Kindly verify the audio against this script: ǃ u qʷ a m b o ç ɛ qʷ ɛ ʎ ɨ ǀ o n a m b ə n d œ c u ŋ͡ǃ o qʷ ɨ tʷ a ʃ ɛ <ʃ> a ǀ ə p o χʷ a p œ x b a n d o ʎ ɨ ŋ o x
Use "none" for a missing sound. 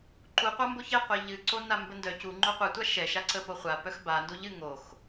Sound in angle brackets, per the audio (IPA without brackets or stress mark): ʃ